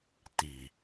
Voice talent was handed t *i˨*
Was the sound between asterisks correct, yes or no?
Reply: yes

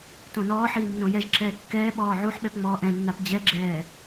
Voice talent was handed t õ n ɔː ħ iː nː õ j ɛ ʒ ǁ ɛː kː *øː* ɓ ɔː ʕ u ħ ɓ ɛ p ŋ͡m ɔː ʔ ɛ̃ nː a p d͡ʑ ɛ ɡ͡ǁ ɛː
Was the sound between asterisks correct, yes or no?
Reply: no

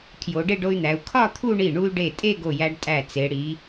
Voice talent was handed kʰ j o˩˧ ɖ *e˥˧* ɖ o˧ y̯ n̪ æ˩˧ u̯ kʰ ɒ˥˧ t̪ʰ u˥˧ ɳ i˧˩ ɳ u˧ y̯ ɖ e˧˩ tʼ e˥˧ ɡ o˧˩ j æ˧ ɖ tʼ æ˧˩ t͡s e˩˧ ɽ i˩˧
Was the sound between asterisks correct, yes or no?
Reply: yes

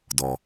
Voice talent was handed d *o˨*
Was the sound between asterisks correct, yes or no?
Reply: no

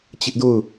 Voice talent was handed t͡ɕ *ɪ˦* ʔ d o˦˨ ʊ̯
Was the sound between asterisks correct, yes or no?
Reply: yes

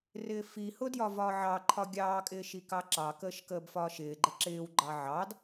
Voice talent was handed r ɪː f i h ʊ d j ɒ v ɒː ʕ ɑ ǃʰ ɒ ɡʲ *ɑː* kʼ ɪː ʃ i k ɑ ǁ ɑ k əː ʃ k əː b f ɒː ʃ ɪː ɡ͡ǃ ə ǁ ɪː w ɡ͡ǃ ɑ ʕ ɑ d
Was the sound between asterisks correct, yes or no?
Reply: yes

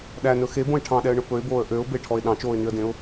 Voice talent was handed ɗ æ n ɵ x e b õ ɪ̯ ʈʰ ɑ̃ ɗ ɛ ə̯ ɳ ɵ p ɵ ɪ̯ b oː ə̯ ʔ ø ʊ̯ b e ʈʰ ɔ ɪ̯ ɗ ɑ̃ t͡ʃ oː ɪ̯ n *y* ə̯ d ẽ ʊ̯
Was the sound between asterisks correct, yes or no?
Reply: yes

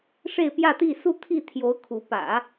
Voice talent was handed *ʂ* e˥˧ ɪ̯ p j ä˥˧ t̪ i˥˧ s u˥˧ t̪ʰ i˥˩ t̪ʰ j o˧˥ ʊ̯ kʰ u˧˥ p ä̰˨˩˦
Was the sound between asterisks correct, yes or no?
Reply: yes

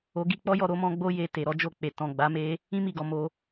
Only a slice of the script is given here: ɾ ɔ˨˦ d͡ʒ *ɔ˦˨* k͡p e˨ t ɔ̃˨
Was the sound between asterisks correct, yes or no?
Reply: no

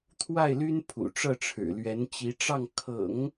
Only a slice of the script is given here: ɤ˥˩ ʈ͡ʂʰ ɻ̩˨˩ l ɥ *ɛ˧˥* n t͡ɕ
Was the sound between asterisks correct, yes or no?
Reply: yes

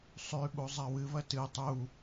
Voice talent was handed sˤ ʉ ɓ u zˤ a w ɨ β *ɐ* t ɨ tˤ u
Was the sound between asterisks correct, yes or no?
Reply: yes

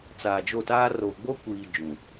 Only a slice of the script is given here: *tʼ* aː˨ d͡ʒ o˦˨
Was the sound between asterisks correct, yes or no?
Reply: no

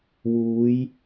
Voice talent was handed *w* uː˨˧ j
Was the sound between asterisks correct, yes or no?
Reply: yes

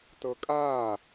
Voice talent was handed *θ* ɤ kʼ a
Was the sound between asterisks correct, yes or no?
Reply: no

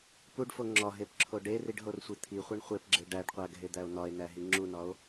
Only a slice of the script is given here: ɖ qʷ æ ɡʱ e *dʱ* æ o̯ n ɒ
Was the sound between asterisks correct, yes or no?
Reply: no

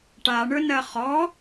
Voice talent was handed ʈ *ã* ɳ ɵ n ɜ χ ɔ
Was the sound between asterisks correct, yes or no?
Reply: no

